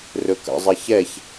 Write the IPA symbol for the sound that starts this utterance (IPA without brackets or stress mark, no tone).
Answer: r